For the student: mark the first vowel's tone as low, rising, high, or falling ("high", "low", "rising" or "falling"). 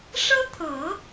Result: high